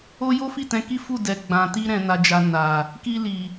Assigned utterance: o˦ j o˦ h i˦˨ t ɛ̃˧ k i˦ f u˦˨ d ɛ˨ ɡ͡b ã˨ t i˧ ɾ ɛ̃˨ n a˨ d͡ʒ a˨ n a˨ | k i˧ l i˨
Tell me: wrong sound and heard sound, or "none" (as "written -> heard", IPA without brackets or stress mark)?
h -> f